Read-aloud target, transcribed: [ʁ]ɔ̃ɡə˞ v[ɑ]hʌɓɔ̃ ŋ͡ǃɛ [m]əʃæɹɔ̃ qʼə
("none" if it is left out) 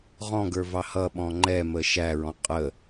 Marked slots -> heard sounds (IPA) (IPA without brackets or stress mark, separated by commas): ʁ, ɑ, m